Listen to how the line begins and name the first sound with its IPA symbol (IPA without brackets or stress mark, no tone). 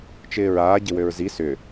t͡ʃ